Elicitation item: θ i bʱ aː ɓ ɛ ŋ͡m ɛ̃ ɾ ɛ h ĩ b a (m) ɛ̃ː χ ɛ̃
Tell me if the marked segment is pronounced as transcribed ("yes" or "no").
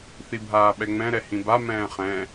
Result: yes